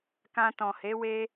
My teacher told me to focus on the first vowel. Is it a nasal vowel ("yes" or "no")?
yes